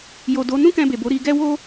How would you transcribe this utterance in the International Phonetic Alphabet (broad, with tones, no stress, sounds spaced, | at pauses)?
j o˨ d o˨˦ n ũ˦ k ɛ̃˧ b e˨ b o˨˦ ɾ i˧ ɡ ɛ˦ w o˦